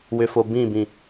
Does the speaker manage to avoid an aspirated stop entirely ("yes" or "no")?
yes